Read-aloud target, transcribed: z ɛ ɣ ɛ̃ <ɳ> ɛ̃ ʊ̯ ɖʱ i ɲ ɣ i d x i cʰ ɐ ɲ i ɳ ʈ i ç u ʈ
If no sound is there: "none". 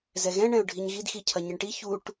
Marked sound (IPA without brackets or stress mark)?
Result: ɳ